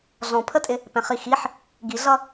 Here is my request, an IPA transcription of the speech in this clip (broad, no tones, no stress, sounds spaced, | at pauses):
ɮ ɔ̃ pʰ ə tʼ ɪ | p ɛ̃ χ i x i ħ | ɡ i ɮ ʌ